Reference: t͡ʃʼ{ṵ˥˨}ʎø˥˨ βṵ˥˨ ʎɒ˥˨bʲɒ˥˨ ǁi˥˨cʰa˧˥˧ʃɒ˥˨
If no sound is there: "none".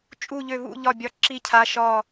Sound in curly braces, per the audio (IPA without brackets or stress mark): u˥˨